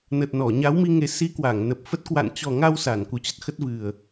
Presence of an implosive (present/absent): absent